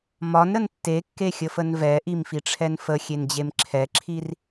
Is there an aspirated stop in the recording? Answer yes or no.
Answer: yes